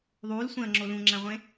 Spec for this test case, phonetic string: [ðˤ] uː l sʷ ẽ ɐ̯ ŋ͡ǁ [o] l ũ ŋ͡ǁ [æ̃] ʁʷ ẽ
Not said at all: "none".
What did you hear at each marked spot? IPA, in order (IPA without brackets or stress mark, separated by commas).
ðˤ, o, æ̃